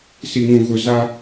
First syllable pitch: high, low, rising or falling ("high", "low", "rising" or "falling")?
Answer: low